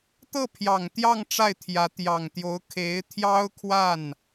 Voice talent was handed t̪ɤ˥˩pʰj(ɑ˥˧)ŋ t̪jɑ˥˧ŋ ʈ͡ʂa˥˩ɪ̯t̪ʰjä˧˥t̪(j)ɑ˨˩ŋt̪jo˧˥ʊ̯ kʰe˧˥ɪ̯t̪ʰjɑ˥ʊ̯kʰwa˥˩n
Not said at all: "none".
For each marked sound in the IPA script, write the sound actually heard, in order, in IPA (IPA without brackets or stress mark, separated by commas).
ɑ˨˩, j